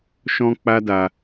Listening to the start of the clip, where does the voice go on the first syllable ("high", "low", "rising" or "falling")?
high